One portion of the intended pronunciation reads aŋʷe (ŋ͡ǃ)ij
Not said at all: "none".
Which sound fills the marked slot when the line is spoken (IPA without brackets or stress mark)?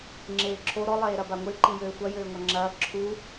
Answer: ǃ